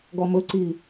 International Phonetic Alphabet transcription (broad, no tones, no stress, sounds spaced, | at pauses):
ɡ ɔ m ɵ ǀ iː